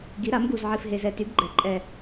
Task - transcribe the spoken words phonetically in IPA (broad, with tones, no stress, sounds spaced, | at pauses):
ɡ i˩˥ ɾ a˩˥ m ɡ u˨˩ z ʕ i˨˩ f ɦ e˨˩ z ɛ˨˩ t y˩˥ ɡ ɡ͡ǃ ɛ˩˥ ǃʼ ɛ˨˩